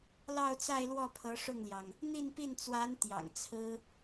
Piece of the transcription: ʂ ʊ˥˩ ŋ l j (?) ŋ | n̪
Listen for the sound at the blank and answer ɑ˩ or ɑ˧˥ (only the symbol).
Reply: ɑ˩